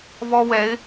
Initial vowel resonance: oral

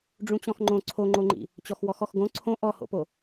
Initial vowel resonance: nasal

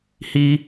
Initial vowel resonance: oral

